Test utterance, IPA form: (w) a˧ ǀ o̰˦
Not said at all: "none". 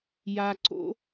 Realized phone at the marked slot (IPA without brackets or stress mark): j